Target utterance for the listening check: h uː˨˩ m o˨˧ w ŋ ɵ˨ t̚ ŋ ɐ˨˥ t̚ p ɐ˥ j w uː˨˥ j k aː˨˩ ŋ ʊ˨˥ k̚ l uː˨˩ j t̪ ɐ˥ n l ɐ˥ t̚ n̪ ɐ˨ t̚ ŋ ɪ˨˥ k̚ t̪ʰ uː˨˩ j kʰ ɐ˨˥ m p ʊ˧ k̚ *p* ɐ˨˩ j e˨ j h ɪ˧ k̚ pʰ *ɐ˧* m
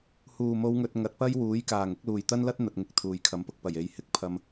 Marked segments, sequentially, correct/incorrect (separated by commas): correct, correct